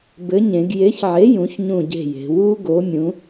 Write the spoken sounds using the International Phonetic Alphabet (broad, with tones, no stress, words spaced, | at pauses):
bɘ˨˥ɲẽ˩˧ɡ je˨˥çʕe˨˥ jũ˨˥çɲũ˦˨ɟe̤˦˨je̤˩˧ wu˦˥ ɡo˨˥mʲũ˨˥